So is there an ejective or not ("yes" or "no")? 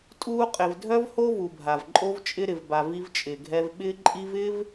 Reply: yes